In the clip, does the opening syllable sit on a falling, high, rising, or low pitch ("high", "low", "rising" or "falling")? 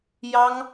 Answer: high